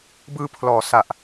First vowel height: high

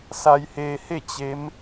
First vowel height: low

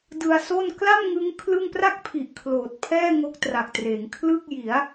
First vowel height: high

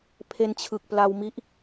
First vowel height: mid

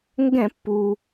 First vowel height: mid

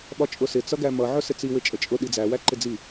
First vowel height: low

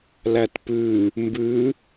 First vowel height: low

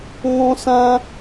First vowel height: mid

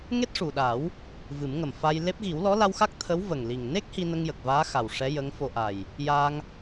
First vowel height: mid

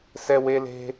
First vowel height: mid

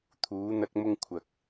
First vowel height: high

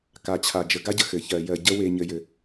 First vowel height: low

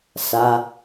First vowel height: low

